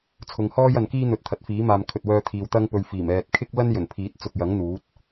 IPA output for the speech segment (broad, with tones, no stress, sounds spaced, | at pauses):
t͡sʰ ʊ˨˧ ŋ h ɔː˥ j ɐ˨ n k iː˥ n̪ ɵ˨ t̚ t̪ʰ ɐ˨˥ t̚ f iː˨˥ m aː˨ m kʰ ɵ˨ t̚ w œː˧ t̪ʰ iː˨ w t̪ ɐ˥ ŋ p ɵ˧ ɥ f iː˨˩ m ɛː˨ t̚ kʰ ɪ˥ k̚ l ɐ˥ n j ɵ˨˩ n pʰ iː˨˥ t̚ t͡s ʊ˨ k̚ j ɐ˨˥ ŋ n̪ uː˨˥ t̚